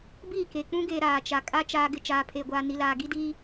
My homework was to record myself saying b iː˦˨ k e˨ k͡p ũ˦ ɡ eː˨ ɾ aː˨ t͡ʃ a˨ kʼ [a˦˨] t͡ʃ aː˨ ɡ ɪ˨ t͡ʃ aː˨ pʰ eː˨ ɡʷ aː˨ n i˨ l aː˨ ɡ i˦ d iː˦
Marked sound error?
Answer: yes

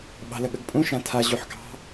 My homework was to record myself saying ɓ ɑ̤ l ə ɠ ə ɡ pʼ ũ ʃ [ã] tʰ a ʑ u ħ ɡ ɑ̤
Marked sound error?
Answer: no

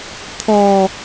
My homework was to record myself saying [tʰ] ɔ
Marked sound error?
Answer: no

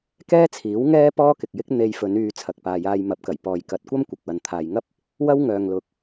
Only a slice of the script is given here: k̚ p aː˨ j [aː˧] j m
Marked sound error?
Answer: no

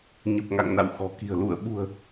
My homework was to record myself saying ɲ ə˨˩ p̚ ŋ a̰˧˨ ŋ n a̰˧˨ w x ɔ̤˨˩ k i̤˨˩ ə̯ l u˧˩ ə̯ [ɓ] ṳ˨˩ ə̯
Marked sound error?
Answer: no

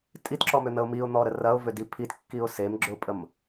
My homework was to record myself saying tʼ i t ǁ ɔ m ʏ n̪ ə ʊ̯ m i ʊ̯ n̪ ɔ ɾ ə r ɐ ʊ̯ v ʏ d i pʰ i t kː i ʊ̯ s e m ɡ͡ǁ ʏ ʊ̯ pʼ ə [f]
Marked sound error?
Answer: yes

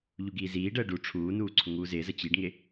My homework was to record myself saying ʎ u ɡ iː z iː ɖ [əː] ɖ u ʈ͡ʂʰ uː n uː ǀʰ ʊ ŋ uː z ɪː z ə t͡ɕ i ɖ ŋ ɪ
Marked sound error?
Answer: no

